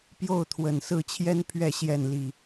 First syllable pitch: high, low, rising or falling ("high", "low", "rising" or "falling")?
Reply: falling